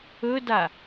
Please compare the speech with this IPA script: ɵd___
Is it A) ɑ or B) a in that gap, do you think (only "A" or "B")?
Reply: B